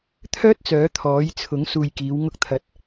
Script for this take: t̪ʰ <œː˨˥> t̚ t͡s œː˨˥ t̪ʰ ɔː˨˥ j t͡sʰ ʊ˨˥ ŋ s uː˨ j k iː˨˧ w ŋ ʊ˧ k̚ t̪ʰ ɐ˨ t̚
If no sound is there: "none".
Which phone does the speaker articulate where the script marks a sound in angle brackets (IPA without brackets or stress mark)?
œː˥